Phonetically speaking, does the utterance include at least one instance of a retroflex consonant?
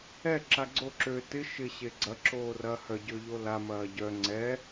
no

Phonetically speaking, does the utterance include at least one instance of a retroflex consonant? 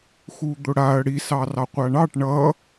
yes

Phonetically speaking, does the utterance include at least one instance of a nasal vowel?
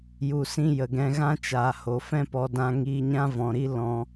yes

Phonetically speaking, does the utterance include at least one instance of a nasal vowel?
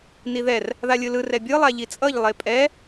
no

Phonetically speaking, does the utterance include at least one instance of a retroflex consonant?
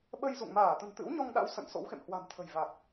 no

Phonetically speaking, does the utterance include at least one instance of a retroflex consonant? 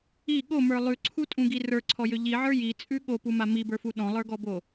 no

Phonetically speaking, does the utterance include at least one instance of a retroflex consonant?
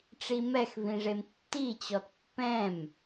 yes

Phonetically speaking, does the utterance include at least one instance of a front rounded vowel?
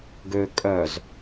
yes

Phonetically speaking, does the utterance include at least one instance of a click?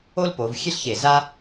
no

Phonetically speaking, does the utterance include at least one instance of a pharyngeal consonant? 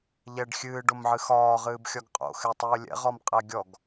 yes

